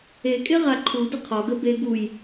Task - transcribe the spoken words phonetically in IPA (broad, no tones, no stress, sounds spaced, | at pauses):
e kʼ e ʁ a ǃʰ u d ə qʰ ɒ ɡ ə b e ɡ u j